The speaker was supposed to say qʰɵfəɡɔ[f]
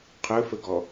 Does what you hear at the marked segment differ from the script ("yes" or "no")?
yes